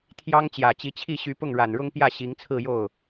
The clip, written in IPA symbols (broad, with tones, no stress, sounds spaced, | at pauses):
t̪ʰ j ɑ˥ ŋ t͡ɕ j ä˨˩ t͡ɕ i˧˥ t͡ɕʰ i˥˩ ɕ y˧˥ p ʊ˥˩ ŋ ɻ a˨˩ n ɻ ʊ˥ ŋ p j ä˥˩ ɕ i˧˥ ŋ t͡sʰ ɹ̩˥˧ j o˥˩ ʊ̯